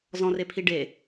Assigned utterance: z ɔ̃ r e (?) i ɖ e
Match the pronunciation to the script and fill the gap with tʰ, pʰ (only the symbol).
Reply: pʰ